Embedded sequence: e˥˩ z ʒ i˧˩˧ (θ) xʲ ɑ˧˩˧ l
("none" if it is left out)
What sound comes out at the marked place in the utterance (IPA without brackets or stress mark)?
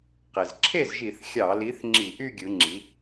θ